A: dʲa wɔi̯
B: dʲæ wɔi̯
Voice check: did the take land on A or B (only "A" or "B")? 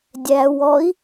B